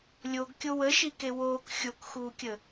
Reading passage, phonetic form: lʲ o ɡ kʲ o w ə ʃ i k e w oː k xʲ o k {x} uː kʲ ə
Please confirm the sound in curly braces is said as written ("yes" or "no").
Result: yes